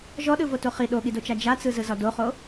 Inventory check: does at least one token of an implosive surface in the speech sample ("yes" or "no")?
yes